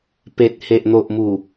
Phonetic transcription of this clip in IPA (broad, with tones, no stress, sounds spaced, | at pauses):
p e˨ t̚ h e˨ ʔ n̪ o˨ ʔ m u˨˩